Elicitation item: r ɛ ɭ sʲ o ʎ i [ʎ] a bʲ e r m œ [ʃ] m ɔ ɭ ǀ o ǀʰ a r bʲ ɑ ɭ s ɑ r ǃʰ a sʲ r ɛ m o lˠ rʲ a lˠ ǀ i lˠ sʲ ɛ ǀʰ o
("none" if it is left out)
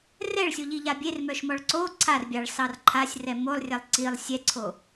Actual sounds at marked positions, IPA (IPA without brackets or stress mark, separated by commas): ʎ, ʃ